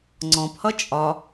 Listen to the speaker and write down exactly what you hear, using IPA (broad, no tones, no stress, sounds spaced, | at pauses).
ŋ͡ǀ ɔ̃ p h ʌ t͡ʃʼ ɒ